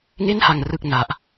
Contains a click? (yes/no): no